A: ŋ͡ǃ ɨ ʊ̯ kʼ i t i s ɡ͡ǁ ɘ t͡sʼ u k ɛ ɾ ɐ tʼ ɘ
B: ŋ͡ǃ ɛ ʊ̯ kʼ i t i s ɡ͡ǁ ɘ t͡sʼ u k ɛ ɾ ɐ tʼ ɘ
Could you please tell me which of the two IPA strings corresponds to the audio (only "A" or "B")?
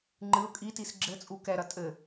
A